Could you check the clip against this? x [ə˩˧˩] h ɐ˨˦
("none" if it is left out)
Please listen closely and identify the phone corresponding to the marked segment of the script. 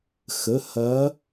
ə˩˧˩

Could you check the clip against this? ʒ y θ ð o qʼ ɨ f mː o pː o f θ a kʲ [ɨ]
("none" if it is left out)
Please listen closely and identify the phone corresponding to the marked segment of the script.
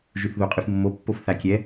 ɛ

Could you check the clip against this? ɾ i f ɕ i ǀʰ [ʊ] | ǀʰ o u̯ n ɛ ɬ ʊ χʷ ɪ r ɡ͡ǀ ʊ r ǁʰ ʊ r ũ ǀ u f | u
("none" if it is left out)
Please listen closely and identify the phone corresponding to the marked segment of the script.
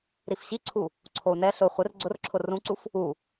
u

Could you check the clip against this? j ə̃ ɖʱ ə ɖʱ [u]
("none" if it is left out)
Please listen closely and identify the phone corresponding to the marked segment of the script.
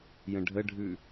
ʉ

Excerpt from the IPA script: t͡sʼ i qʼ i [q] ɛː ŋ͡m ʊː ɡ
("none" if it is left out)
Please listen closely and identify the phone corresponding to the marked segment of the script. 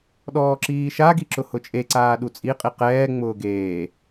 q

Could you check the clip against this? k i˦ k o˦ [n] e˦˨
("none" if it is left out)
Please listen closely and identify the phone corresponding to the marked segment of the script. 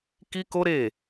ɾ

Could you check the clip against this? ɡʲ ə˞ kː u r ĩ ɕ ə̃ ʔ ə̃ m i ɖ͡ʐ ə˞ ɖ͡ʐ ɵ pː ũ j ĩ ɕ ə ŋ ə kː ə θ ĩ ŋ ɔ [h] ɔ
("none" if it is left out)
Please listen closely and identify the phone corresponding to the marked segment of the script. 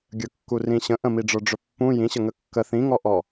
ʔ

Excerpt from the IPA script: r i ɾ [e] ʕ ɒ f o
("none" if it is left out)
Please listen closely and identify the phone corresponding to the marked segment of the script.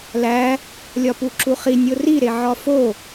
e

